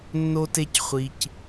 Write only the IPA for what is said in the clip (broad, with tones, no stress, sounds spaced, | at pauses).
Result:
nː o˦ t e˦ c χʷ i˧ c